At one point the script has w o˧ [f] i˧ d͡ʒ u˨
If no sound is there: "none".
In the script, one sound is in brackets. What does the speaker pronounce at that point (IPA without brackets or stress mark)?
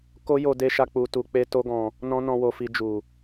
f